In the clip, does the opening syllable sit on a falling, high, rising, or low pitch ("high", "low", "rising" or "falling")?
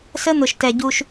high